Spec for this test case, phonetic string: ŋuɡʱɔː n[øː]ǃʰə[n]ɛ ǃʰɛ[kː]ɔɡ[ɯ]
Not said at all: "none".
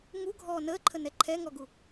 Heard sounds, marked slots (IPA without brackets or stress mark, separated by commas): əː, n, ŋ, u